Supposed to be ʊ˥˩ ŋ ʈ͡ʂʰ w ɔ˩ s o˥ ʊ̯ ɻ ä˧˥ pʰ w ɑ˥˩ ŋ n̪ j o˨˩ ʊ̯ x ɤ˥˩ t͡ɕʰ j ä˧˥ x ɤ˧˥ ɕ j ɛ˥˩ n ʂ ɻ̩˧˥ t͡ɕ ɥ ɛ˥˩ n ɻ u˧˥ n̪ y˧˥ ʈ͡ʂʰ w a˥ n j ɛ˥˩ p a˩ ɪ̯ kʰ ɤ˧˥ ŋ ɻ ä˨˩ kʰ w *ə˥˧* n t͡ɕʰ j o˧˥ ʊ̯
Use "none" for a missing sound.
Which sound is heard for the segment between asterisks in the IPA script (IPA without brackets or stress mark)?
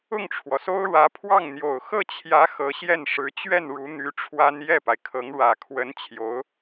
ə˧˥